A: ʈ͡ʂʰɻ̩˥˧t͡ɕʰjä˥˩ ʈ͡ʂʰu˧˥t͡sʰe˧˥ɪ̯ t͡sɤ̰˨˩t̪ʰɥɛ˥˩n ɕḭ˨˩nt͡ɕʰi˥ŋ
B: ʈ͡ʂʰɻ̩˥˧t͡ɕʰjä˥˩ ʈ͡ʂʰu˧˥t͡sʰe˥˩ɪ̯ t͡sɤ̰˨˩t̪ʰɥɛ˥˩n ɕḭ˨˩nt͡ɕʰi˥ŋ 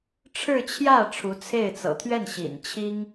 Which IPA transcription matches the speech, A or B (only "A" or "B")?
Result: B